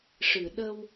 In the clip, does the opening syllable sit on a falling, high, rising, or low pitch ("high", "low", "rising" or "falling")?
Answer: low